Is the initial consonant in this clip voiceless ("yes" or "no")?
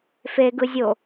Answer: yes